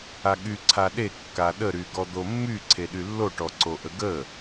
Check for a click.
present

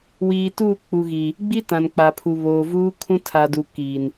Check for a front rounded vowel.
absent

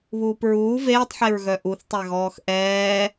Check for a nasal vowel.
absent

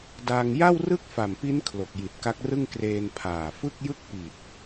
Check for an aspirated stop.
present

